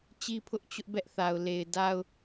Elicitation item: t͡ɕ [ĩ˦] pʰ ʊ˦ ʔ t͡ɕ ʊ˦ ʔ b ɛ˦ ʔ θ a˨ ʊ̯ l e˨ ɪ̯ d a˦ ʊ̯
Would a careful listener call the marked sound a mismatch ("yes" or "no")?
yes